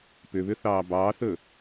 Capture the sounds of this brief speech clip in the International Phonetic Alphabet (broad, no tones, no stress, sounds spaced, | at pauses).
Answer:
p ʏ β ʏ θ ɑː b ɑː θ ɵ